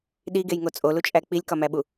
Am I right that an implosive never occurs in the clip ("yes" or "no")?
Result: no